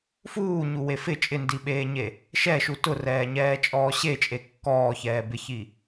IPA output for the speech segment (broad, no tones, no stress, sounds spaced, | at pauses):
f uː ɲ u w e f ɪ t͡ʃʼ ɪ n d i ɓ eː ɲ e | ʃ ɛ ʃ u t ʊ r ɛː ɲ ɛː t͡ʃʼ ɔː ɕ e t͡ʃʼ e kː ɔː ç ɛː b ɪ ç i